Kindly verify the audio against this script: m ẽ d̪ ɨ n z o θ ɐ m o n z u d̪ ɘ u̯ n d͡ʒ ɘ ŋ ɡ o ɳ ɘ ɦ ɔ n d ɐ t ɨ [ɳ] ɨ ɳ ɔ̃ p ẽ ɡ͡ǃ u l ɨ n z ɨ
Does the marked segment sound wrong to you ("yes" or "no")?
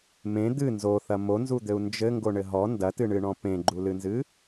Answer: no